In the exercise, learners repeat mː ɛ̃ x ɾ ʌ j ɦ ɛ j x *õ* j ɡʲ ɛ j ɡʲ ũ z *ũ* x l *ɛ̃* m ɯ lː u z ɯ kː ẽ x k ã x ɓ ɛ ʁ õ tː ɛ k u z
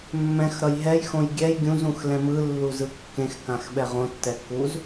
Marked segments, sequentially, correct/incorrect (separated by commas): correct, correct, correct